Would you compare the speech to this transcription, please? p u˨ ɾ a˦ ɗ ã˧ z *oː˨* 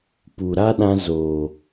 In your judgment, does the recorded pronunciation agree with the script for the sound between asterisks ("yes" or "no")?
yes